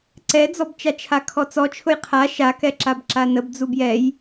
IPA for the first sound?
ǀ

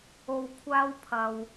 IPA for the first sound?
o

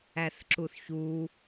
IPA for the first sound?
æ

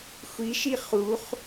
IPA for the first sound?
xʷ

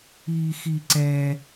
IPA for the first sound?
iː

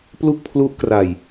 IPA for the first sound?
p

